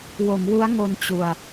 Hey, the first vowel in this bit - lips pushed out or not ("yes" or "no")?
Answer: yes